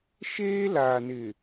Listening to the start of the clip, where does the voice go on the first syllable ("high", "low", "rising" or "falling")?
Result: high